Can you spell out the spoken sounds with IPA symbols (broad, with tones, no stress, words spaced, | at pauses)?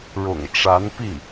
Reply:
ɻʊ̰˨˩ŋʈ͡ʂa˧˥npi˥˩